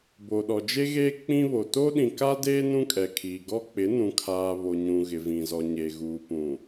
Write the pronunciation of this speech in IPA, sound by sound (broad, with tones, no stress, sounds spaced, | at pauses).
b o˨ ɗ ɔ˨ d͡ʒ e˦ ɣ eː˦ k͡p ĩ˦ β o˨ t o˦ ɗ ĩ˨ k a˦ d eː˦ n ũ˦ kʼ ɛ˨ kʰ iː˨ ɡ ɔ˦ k͡p ɪ˨˦ n ũ˨ kʰ aː˨ β o˨ ɲ ũ˨ ɣ ɪ˨ v ĩ˨ z ɔ˨ ɲ e˨ ɣ uː˨ p ũ˨